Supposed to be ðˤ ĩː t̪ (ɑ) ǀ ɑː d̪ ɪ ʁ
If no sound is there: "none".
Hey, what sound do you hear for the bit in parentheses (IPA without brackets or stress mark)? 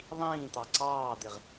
ɑ